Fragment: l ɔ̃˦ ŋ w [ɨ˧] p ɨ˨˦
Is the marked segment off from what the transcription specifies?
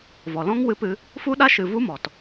no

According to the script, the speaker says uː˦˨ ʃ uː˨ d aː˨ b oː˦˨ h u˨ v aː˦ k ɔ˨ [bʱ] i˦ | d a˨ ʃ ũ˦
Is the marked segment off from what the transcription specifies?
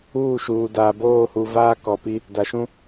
yes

